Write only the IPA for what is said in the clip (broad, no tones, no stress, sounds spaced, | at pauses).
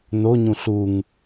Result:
n o ɲ ũ ɬ u ŋ